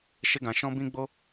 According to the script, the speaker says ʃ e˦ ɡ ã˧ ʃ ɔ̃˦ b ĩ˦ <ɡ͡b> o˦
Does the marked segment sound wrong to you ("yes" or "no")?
no